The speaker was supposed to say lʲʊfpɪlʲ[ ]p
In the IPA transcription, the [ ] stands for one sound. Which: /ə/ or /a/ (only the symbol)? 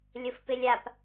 a